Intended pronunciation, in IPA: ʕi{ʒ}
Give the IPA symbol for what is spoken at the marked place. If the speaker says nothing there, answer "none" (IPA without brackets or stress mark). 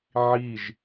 ʒ